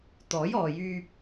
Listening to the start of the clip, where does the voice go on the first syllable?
rising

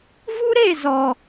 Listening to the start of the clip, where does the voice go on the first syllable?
high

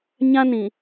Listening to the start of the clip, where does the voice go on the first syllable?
high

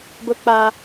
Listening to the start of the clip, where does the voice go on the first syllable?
high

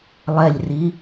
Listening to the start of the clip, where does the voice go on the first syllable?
low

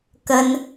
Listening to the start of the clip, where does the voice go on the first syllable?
high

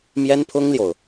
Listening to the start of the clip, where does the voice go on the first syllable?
high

